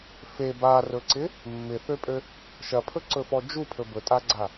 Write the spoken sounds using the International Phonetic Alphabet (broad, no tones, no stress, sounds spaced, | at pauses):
f e b a r ɵ ǀ ɪ | mː ɪ θ ø pʼ ø | ʃ ɐ pʰ ɵ ǀ ɵ f ɔ d͡ʒ u pʰ ɵ b ɵ tʼ a ɡ͡ǀ a